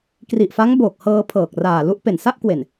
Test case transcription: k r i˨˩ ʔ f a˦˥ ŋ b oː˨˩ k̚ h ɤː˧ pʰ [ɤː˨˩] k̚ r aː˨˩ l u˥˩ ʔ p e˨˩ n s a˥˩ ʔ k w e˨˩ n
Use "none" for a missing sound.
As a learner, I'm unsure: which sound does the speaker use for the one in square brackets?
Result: ɤː˨˩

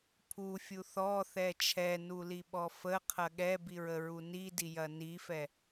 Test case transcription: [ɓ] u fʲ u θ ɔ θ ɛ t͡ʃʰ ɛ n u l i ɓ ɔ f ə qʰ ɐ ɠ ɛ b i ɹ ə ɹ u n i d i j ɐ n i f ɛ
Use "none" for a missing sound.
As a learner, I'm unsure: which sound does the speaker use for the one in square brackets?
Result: pʰ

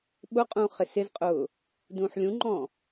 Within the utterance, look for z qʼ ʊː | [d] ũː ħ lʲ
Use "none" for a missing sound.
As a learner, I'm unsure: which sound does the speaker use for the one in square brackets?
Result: d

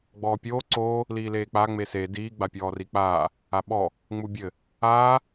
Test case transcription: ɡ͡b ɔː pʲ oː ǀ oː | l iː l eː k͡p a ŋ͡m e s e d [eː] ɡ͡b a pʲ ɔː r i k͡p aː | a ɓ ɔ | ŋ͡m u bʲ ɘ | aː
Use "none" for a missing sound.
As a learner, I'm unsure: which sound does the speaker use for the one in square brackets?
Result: iː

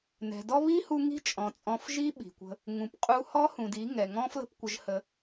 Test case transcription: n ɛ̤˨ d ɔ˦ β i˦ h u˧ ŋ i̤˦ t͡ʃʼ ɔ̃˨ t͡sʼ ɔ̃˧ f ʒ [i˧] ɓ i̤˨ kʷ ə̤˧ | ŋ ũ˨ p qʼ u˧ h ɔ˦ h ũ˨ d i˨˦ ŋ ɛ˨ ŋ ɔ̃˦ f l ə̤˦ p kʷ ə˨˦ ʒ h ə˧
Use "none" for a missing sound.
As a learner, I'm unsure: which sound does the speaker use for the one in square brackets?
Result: i˦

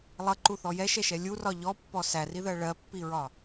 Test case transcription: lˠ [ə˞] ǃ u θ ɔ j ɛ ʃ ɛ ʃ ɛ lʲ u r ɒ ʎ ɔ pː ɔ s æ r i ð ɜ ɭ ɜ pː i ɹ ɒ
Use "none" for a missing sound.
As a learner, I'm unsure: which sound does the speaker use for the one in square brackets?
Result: ʌ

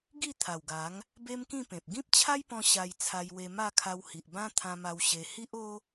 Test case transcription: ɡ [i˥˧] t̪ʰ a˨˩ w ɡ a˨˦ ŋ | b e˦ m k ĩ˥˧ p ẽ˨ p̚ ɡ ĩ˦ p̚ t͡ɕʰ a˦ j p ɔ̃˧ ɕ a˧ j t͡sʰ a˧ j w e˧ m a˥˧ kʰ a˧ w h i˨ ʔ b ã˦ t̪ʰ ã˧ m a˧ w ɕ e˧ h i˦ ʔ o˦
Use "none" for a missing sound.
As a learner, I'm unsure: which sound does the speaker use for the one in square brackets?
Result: i˥˧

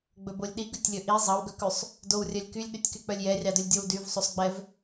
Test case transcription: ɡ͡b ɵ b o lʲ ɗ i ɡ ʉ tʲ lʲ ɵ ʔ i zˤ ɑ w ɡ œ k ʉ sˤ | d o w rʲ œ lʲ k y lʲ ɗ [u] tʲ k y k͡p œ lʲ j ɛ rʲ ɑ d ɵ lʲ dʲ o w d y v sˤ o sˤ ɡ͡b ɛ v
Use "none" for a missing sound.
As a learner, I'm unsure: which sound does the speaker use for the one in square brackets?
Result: ʉ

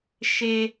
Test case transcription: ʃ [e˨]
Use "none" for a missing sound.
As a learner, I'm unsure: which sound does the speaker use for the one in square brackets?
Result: e˨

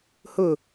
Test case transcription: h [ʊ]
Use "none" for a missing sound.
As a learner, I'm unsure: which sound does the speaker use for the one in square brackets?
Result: ʊ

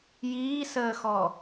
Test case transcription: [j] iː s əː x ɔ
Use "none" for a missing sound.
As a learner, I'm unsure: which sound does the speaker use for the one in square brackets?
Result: j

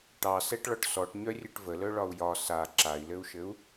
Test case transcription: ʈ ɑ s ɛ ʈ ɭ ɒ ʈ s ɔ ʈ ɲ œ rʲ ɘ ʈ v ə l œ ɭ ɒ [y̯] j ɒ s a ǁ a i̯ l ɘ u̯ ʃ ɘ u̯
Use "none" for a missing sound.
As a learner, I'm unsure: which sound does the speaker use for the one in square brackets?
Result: u̯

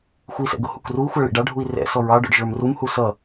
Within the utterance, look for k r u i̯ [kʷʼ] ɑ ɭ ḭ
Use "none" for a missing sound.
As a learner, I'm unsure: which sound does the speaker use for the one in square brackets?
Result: xʷ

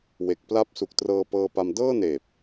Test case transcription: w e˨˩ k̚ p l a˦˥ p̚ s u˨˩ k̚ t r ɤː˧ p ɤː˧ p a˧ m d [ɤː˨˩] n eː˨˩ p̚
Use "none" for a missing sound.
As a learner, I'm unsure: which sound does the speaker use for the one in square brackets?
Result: ɤː˥˩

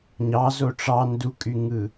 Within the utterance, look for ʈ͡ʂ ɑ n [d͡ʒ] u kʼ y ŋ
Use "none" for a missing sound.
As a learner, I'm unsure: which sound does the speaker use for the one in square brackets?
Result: d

